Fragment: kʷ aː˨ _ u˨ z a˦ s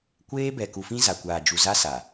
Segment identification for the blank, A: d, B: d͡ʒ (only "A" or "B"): B